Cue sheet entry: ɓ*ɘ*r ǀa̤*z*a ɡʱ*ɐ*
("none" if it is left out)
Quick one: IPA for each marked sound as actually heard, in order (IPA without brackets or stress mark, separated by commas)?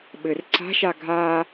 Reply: ɘ, ʃ, a